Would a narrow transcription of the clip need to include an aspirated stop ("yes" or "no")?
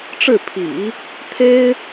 yes